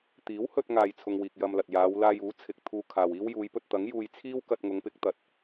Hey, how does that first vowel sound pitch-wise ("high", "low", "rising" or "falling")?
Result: rising